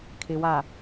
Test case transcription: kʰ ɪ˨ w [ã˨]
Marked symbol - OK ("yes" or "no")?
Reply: no